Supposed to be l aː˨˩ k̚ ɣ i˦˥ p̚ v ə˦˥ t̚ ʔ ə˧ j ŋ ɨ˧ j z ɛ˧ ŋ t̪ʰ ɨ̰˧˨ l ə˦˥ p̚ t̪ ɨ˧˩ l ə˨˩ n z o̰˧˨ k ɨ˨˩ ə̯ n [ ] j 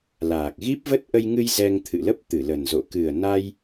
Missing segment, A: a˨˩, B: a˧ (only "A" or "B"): B